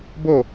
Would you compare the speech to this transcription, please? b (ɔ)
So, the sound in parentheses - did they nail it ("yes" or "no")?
no